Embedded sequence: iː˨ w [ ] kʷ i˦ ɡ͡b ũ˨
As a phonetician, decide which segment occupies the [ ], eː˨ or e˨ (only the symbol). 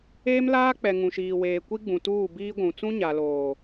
eː˨